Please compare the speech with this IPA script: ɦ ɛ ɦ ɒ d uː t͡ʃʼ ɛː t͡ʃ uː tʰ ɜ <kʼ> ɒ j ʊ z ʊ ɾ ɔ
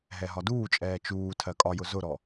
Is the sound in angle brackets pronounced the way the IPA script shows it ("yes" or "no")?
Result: yes